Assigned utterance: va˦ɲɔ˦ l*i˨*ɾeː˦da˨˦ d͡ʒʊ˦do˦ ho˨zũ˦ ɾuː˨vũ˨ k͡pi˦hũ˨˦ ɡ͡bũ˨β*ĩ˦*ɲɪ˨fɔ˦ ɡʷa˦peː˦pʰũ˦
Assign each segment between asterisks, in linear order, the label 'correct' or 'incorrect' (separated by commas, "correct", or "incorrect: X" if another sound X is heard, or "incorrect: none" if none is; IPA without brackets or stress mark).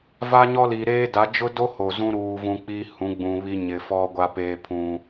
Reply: correct, incorrect: i˦